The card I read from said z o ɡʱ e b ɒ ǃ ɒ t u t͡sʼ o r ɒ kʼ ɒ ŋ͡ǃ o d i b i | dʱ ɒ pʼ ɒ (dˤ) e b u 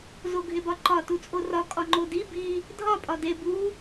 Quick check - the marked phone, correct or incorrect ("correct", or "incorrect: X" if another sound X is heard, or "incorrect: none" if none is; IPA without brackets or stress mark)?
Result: incorrect: d